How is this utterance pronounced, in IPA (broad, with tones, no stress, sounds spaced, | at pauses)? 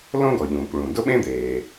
l õ˥ ɡ ɔ˩ ʎ ũː˩ k ɭ ũː˩ d ʊ˥ ɓ ẽ˥ d̪ eː˩